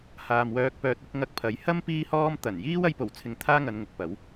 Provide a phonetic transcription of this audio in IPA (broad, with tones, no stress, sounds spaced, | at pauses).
h aː˨ m w œː˧ k̚ p œː˧ t̚ ʊ˧ k̚ ŋ ɐ˧ k̚ pʰ ɐ˨˥ j h ɐ˥ m p iː˥ h ɔː˥ m t̪ ɐ˨˩ n j iː˥ w ɐ˧ j p o˨˩ w t͡sʰ ɪ˨ ŋ t̪ʰ aː˥ ŋ ɐ˨˧ n ŋ ʊ˨ k̚ p ɐ˨˥ w